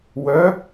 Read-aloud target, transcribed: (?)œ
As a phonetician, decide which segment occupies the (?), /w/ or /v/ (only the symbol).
w